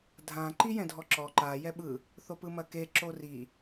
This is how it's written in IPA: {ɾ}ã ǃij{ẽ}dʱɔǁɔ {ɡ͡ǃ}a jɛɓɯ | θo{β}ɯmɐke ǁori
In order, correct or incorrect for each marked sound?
incorrect, incorrect, incorrect, incorrect

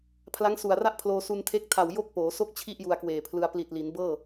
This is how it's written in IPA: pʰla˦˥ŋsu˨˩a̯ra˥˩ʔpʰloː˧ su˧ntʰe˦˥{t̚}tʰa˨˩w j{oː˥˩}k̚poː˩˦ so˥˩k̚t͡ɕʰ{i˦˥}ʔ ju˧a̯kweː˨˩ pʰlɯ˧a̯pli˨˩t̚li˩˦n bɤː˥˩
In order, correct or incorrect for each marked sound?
incorrect, incorrect, incorrect

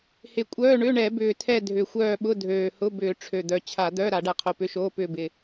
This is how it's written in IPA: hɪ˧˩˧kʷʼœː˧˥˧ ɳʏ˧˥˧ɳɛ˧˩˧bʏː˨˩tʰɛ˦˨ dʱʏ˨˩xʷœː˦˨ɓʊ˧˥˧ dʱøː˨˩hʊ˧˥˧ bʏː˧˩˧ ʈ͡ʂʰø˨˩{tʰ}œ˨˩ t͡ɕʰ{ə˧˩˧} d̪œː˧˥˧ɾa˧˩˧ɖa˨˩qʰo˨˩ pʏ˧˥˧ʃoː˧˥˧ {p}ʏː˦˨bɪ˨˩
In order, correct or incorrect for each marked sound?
incorrect, incorrect, correct

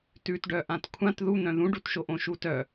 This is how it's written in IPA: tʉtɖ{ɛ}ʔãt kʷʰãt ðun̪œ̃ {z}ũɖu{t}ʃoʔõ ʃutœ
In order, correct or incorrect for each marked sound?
incorrect, incorrect, correct

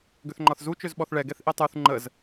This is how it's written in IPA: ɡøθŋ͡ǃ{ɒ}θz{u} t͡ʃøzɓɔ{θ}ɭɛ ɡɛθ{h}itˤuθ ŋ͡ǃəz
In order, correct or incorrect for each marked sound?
correct, correct, correct, incorrect

